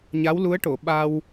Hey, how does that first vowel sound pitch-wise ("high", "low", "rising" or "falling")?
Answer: rising